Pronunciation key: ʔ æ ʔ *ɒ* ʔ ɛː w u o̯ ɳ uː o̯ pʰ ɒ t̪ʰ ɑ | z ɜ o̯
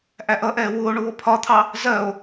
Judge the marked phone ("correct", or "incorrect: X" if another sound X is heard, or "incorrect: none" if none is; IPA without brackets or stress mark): incorrect: ʌ